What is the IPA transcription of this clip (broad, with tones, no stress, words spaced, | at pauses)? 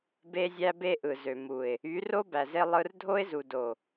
be˦zʲæ˦be˦ʔɯ˨ zø˨mu˨ɪ̯ | y˨˦ro˦ bæ˨ze˦ lˠɯ˦r dʱo˦ɪ̯zu˨do˨